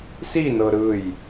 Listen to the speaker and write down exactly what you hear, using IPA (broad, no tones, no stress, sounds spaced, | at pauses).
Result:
s i n ɤ ɾ ɯ j